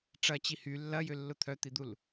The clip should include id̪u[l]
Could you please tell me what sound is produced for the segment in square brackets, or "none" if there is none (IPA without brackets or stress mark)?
l